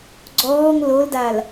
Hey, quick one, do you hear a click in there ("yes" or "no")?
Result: yes